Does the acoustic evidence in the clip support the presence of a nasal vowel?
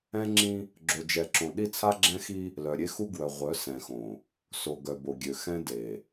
yes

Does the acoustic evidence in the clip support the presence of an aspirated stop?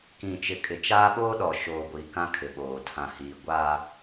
yes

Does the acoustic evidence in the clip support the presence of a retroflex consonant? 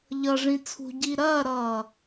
yes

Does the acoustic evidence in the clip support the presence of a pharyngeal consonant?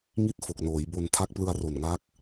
no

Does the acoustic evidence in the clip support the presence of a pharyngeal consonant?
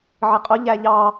yes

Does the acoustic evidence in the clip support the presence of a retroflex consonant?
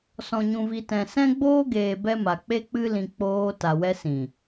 no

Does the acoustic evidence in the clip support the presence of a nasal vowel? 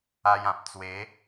yes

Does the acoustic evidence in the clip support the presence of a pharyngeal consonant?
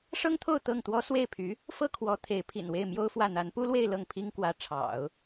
no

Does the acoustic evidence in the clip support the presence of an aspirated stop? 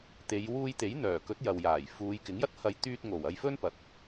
no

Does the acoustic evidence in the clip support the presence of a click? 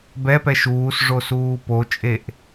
no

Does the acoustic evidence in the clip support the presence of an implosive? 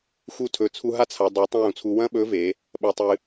yes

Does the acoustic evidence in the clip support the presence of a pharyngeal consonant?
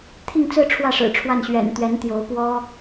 no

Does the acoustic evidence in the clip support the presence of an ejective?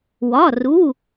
no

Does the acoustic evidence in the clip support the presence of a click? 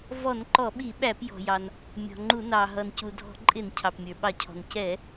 yes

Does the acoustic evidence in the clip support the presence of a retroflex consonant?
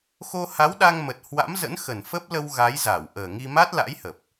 no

